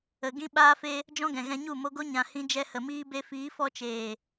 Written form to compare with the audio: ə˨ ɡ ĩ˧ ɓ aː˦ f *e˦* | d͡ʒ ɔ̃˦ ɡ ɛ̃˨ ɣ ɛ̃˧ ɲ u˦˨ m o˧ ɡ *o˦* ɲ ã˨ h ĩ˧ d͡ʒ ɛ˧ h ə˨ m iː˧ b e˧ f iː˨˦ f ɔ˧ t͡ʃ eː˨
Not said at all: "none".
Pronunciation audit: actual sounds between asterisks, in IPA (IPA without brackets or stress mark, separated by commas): e˦, o˦